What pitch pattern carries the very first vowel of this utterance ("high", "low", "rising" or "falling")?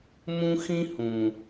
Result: high